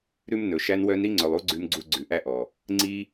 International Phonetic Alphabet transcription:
ɾʉ˦mnɵ˨ ʃæ˧nwœ˧n ɾi˦ŋ͡ǀɵ˨lˠu˦ ɡ͡ǀʉ˧mɡ͡ǀu˧ ɡ͡ǀʉ˨ʔæ˦ʔɔ˨ | ŋ͡ǀi˧

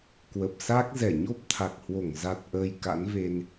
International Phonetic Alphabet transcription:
kwə˨˩p̚sa˦˥k̚ zɛ˧˩ɲo˦˥p̚t̪ʰa˨˩k̚hwo˧˩ŋ za˨˩t̚ʔəː˨˩j ka̰˧˥nve˧n

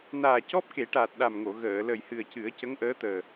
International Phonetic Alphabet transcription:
naː˨˩cɔ˦˥p̚ke˨˩˦ʈa˨˩t̚ ɗa˨˩mŋo˨˩˨ ɣəː˨˩˨ lə˨˩jhɨ˨˩ə̯cɨ˨˩˦ə̯ cə˧˥ŋʔəː˧˥ t̪əː˨˩

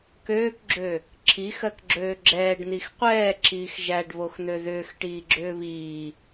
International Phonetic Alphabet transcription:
køːkɡ͡ǁø | ǁʰixɜkɡ͡ǁøː ɡ͡ǁɛːɖn̪ix qʷɛːǁiːx ʒæɖβoxn̪ø ðʏːxʈiːɡ͡ǁʏː βiː

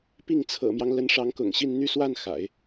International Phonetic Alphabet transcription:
pi˥˩ŋ t͡sʰɤ̰˨˩mjɑ˦ŋ lə˧˥nʂɑ˧˥ŋkʊ̰˨˩ŋɕi˥˧n n̪y˥˧swa˥˩n xa̰˨˩˦ɪ̯

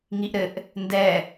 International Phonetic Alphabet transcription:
ŋiʔɾɘʔ | ndɛ

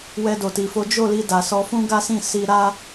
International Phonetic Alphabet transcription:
wɛ˧do˨ti˨fo˨˦ d͡ʒo˦˨li˧da˨ sɔ˧fũ˦ɡa˦sĩ˦˨ si˧ɾa˦

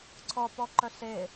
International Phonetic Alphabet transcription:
ǀʰɔ pɔǃœɬe

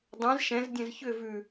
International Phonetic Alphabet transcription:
dˤɛ̃z ʃɛ̃zdʲɛ̃z çʏ vʉ

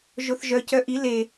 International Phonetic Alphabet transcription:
ʒoθʒœ cœʔi le

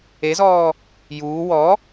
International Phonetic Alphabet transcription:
ezɔː | juː wɔ

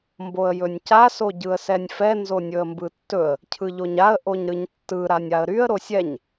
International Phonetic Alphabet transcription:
mboə̯jɵnʲca soɟɯə̯sɛnʲfɛ nzonʲɵə̯mbɯtːɵə̯ | cʰɯʎoɲaə̯ ʔoɲɾɯɲtːɯ ɾanʲaə̯ɾyə̯ ɾosʲɛɲ

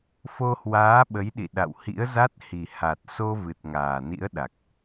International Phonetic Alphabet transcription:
fo˧hwaː˨˦ɓə˨˦jɗḭ˧˨ ɗa̰˧˨whḭ˧˥ə̯za˦˥t̚ hi˨˩ ha˨˩t̚so˧ vɨ˨˩t̚ŋaː˨˩nḭ˧˥ə̯ ɗa˨˩k̚

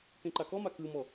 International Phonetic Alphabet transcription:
kẽǃakɔma kɯmɔ

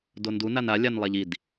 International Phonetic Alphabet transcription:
dondu nana lʲanlˠaʎid

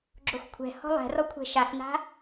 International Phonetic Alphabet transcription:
ɡ͡ǁoxkʷʰɛ̤ hɔ̤lˠɛ̤rɔkʷʰɛ̤ ʃaxna̤

